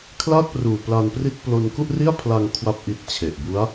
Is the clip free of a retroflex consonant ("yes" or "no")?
yes